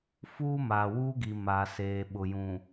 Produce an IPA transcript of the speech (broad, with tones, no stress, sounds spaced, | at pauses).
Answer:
f uː˦ m aː˨ w uː˦ ɡ i˨ m aː˨ s eː˨ ɓ ʊ˨ j ũ˨